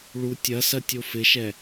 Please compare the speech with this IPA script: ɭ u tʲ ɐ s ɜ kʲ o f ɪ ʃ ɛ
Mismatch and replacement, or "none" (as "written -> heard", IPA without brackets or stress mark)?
kʲ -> tʲ